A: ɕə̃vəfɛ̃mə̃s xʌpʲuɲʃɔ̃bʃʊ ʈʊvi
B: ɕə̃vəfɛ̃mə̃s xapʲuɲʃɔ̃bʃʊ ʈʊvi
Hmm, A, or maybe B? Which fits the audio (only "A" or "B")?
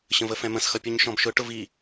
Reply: A